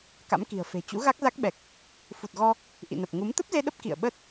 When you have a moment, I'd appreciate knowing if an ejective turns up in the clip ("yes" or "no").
no